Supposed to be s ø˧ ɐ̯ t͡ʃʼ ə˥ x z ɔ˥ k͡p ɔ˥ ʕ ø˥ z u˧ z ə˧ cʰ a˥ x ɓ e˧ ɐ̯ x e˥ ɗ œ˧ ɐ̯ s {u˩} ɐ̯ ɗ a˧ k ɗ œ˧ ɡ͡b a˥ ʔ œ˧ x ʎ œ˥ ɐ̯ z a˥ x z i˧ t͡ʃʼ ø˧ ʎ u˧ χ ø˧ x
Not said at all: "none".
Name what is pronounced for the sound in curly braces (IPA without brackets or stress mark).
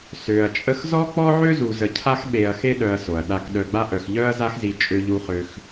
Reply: o˩